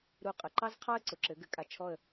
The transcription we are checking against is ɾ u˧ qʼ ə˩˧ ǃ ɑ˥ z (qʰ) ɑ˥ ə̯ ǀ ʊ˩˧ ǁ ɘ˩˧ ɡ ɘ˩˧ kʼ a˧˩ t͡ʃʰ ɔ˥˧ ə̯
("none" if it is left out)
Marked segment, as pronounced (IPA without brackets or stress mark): qʰ